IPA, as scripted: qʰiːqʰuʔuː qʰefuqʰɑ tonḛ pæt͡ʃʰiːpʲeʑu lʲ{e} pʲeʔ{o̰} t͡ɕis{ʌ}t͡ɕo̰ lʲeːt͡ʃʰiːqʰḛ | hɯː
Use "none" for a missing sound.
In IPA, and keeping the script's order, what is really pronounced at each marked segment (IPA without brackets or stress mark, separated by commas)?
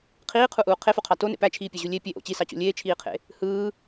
e, o̰, ɑ